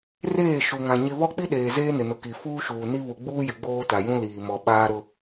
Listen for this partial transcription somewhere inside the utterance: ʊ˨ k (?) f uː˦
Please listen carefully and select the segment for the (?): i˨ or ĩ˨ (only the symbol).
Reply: i˨